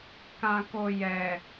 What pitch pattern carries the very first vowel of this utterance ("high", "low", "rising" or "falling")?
low